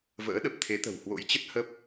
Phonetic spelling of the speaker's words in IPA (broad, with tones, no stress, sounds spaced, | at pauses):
v ə̰ː˧˥ ɗ ə˨˩ p̚ t̪ʰ e˨˦ t̪ ə̤˨˩ w h w o̰˧˥ j t͡ɕ ə˦˥ t̚ h ə˦˥ p̚